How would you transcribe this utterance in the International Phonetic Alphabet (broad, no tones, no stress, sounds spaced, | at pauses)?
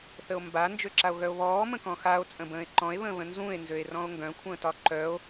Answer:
θ ə o̯ m b a n d͡ʒ ø ǁ a o̯ ɣ œ o̯ β ɔː m ə̃ k ɔ̃ x a o̯ t͡sʼ ə̃ b ə̃ː e̯ ǃ ɔ̃ e̯ β ə̃ː β ə̃ n z ũ e̯ n z ø e̯ r ɔ̃ o̯ ŋ ɡ œ̃ kʷʰ ə̃ː t ɒ ǃ œ o̯